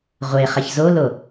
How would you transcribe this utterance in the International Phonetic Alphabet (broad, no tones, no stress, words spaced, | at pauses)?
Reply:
ʁʷeχɛç zolo